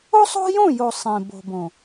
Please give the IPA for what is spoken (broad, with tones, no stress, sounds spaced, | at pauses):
o˦ sˤ o̤˦ j õ˦˨ j o˨ sˤ ẽ˨ b o̤˨ b õ˨